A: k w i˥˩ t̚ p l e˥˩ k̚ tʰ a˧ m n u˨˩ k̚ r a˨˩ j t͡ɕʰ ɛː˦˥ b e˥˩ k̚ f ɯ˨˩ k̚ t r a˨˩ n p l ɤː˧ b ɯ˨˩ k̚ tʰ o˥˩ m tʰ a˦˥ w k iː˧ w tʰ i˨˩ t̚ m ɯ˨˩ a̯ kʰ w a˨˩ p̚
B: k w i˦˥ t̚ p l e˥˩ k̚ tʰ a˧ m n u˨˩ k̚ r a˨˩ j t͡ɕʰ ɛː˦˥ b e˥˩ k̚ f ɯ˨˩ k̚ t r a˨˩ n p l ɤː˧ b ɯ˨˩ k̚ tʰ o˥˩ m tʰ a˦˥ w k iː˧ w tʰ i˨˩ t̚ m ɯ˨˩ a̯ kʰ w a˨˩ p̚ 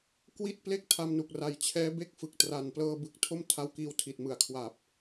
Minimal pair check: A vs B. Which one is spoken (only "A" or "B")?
A